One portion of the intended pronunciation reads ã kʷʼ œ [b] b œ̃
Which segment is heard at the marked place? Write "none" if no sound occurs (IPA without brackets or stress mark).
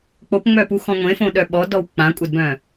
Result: d